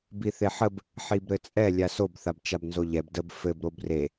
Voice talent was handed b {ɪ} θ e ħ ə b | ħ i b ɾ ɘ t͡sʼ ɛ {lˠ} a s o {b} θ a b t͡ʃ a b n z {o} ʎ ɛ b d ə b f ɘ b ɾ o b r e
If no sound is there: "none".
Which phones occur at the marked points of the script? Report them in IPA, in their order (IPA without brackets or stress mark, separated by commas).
i, lʲ, b, o